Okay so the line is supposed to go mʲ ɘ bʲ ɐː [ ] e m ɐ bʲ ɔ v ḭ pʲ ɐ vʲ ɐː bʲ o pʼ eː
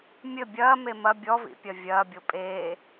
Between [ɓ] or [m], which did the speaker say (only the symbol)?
m